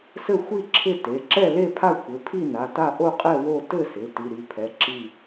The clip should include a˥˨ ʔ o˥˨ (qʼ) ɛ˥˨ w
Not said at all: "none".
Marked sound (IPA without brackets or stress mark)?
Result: qʼ